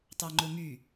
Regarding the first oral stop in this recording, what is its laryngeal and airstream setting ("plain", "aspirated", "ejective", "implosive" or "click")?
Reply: plain